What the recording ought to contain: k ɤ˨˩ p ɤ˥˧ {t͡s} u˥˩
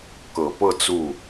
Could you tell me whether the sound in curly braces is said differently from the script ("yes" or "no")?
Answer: no